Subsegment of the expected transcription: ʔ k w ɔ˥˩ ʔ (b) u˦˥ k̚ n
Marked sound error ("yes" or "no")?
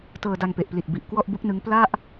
no